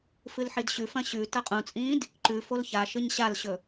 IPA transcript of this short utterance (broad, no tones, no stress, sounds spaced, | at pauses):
f ɨ l ħ i d ɕ ʉ f ɐ̃ ɕ ʉ t ɐ qʼ ũ t͡sʼ ĩː d | ǃ ʉ f o l ç a ʃ ɨ ɲ ɕ a l ɕ ɵ